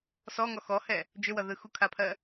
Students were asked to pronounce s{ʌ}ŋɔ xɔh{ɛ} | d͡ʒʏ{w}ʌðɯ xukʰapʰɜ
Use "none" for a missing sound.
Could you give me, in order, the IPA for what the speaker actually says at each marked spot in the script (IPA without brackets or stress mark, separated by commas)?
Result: ɔ, ɛ, w